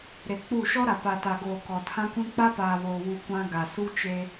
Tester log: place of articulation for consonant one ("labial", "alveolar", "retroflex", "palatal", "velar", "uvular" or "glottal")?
alveolar